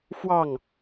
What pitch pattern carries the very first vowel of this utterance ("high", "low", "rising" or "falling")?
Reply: falling